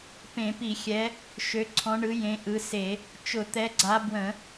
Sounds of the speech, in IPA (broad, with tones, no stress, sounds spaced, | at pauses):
p ẽ˧˩˧ p i˧˩˧ xʲ ɛ˨˦ | ʃ ø˨˦ ǀʰ ɔ̃˨˦ ɳ ɯ˨˦ j ẽ˨˦ ʔ ɯ˨˦ s e˧˩˧ | t͡ʃ ʊ˧˩˧ t̪ ɛ˨˦ ɡ͡ǀ a˨˦ b w ə̃˧˩˧